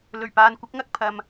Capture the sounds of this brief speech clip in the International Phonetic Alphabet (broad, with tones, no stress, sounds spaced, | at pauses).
l ɵ˨˩ ɥ p aː˨ n kʷ ɪ˨˥ k̚ ŋ ɐ˧ k̚ pʰ ɐ˨ m